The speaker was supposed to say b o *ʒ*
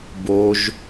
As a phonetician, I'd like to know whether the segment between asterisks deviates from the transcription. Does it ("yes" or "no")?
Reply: no